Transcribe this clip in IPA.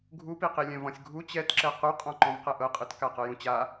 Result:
ɡʱupiqi lʲɛ̃vɔ̃sʲɡʱu t͡ɕɛtǁɛ quqʼɔ̃ ǃɔ̃vqɛʔɤqʼɯt kaqɤjũt͡ɕa

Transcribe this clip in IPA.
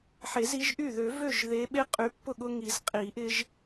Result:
ħe˨˩˦zi˨˦ʒ ʔy˥˩ ðø˨˩˦ vø˥˩ʒðe˨˦ ɓe˦ qʼy˨˦pːʊ˥˩ɠʊ˦ ŋi˨˩˦zqʼi˨˩˦ʔɪ˦ʒ

